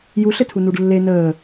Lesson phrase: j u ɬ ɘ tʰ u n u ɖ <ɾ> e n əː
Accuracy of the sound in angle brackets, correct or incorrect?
incorrect